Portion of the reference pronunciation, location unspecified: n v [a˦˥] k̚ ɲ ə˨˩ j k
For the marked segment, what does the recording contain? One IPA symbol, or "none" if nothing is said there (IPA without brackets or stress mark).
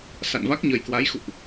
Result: a˦˥